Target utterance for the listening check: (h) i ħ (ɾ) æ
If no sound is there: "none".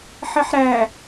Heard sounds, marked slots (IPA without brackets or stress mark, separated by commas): ħ, ɾ